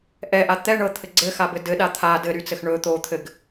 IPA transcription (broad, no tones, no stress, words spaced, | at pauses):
ʔɛʔa t̪ɛ ɳɤt̪ʰɘ ɡ͡ǀɘxabɘ dɘɗa t̪ʰa dɘɾyt͡sɘx ɳɵ t̪o t̪ʰɘɡ